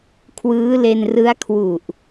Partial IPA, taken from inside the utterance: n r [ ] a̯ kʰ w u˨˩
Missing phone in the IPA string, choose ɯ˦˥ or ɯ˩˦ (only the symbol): ɯ˦˥